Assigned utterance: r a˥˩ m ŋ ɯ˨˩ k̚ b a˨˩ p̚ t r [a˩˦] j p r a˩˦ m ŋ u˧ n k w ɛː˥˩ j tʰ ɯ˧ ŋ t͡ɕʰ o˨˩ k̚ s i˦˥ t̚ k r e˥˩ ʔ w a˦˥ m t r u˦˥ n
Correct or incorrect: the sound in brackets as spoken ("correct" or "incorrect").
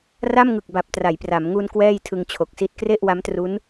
correct